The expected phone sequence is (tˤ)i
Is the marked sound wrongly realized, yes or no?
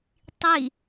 no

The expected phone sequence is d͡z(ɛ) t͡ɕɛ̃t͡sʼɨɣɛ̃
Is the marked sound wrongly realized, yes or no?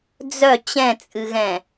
yes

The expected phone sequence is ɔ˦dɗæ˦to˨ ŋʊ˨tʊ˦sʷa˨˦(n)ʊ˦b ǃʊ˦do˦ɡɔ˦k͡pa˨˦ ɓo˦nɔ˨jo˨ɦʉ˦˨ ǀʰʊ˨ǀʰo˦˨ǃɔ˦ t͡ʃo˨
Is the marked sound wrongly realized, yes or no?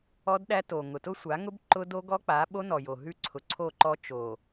yes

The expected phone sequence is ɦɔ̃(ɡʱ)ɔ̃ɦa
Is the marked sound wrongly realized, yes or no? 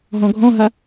no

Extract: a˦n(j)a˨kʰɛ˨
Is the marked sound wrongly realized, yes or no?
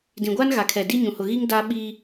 yes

